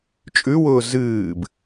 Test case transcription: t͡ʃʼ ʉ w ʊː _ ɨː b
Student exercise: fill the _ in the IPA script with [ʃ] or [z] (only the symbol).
z